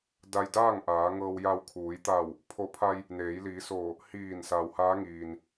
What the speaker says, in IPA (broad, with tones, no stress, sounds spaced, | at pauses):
d a˧ j d aː˥˨ ŋ ʔ aː˩˧ ŋ ɤː˧ w j a˧ w kʰ uː˩˧ j t̪ a˧˩ w | pʰ o˧˩ pʰ a˧ j | n eː˩˧ j l iː˩˧ s oː˧˩ | h iː˧˩ n s a˩ w h aː˧˥ ŋ iː˩ n